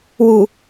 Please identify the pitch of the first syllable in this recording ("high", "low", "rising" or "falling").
low